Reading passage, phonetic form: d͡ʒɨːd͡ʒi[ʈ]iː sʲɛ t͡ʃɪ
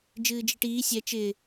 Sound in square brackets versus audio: correct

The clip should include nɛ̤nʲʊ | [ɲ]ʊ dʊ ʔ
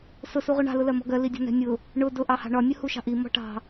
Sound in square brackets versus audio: incorrect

